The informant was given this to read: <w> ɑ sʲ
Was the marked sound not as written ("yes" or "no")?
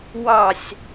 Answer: no